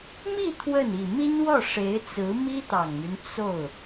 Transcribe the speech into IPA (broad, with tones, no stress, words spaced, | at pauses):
mi˥˧ t̪ʰwə˥˩n i˨˩mi˥nwɔ˥˩ʂe˧˥ɪ̯ t͡sɹ̩˧˥mi˥t̪ɑ˨˩ŋmy˦n t͡so˥˩ʊ̯